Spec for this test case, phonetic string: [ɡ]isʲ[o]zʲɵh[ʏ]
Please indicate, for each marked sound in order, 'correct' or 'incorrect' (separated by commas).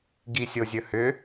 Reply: correct, correct, correct